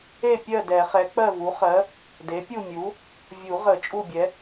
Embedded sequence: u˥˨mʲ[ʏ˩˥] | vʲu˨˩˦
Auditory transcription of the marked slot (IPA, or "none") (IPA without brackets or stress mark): u˩˥